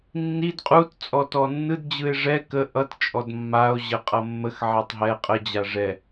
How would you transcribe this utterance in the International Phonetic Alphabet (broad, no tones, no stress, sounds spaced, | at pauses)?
nː i d qʼ u t t͡sʼ ɔ t ɔ nː ɯ d d͡ʑ ɯ e̯ ʐ ɛ k ə ʔ ʌ t t͡ʃʼ ɔ d mː a o̯ ʑ ɜ qʼ ʌ mː ə x ʕ ɛ tˤ ɦ ɛ qʼ ə d͡ʑ a ʐ ɛ